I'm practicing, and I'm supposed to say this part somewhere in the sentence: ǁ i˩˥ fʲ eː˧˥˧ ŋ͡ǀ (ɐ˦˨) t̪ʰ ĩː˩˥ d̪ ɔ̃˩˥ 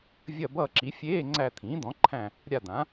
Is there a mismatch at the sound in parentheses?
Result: yes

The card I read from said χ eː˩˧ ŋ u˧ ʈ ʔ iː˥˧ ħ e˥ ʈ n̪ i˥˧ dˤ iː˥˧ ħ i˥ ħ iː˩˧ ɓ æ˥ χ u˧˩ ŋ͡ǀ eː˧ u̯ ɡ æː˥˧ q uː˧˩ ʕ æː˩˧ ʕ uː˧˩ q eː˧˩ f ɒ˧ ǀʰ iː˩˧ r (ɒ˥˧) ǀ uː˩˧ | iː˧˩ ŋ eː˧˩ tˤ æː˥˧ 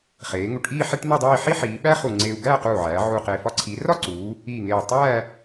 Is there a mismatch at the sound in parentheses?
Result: no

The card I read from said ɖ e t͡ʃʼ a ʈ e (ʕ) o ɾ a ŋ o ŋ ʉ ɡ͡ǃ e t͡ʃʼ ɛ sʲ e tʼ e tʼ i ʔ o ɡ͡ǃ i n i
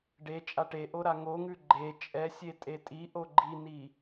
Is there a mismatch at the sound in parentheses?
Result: yes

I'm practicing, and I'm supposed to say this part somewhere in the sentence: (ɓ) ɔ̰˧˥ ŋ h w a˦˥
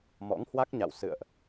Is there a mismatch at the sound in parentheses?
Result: yes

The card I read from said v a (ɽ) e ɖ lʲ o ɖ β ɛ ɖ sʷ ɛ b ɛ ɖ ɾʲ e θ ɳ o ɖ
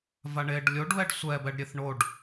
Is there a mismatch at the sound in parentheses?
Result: yes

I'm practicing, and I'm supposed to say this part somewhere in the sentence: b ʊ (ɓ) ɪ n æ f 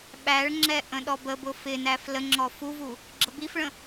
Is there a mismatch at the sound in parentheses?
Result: yes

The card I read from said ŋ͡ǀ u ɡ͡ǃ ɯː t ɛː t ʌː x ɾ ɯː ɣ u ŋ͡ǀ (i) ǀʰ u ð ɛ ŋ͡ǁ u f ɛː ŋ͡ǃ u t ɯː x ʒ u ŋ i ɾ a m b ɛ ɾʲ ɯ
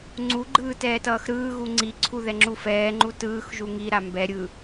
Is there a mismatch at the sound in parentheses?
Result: no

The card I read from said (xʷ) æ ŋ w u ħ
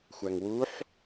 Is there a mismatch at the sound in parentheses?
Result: no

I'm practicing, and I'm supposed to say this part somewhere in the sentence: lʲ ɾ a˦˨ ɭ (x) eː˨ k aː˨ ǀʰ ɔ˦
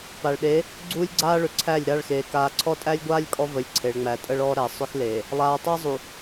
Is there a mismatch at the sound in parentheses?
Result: no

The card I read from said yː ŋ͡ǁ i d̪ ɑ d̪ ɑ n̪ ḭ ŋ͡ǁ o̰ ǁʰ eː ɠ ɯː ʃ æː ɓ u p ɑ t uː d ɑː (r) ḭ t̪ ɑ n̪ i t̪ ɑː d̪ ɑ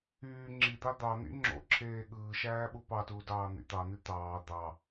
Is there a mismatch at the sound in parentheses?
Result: yes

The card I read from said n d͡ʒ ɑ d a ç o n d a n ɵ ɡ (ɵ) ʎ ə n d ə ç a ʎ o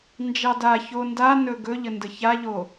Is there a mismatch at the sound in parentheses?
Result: no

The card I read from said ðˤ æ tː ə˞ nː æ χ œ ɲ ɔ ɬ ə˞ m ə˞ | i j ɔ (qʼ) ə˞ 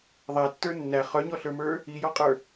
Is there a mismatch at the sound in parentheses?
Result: no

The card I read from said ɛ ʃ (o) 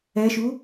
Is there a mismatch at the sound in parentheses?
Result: yes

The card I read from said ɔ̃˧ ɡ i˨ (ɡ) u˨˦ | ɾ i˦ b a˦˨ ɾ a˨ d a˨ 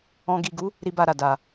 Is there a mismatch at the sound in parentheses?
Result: no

